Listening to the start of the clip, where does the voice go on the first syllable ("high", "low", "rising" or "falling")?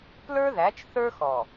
high